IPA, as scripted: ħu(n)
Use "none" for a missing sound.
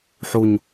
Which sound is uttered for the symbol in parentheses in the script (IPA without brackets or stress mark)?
ɲ